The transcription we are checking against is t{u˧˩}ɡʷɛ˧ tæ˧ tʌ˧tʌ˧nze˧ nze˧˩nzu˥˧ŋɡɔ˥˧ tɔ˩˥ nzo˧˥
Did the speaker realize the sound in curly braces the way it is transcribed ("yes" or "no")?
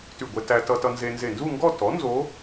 no